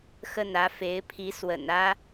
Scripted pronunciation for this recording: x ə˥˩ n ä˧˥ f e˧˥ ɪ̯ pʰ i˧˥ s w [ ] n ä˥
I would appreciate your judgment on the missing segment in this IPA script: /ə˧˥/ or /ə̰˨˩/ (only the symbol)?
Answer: ə̰˨˩